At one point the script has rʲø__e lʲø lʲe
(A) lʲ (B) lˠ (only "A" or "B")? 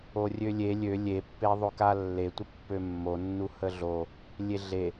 A